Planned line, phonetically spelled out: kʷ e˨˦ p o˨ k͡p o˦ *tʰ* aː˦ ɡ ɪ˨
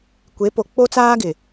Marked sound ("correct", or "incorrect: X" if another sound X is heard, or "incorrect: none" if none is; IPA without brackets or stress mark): incorrect: t͡s